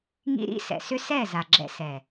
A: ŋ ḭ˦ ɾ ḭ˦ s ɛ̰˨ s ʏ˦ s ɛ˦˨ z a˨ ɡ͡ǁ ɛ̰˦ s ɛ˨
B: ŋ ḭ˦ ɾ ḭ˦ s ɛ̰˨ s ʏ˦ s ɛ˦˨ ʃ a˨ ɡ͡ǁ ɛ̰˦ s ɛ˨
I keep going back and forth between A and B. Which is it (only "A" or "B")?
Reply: A